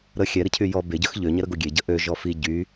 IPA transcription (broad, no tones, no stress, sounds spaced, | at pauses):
ɾ ə xʲ ɛ ɾ i cʰ y j ɔ b e ɟ œ x ʎ ø ɲ ɛ ɾ ə ɡ o ɡʲ e ɟ ə ʔ ø ʒ ɔ f i ɟ y